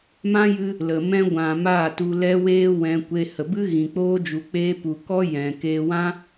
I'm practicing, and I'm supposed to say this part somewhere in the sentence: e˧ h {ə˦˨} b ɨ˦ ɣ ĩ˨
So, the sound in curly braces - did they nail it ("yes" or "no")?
no